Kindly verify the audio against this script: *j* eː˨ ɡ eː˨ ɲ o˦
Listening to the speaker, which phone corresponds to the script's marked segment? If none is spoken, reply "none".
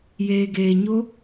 j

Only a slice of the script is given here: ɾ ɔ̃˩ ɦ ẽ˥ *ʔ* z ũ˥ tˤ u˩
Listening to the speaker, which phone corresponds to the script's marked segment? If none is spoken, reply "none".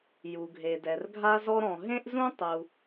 ʔ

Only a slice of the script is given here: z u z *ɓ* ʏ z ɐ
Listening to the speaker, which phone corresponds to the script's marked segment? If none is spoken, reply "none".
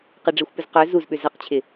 ɓ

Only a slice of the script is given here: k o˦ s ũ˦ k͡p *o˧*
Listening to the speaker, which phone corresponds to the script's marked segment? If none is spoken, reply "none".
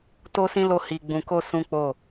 o˦˨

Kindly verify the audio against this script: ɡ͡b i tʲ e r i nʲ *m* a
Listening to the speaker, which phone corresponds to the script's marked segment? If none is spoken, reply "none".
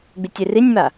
m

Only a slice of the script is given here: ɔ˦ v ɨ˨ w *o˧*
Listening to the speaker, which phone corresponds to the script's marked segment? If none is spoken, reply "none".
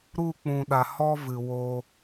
o˧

